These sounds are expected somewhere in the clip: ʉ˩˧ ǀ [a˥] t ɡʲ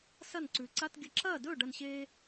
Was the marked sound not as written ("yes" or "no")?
yes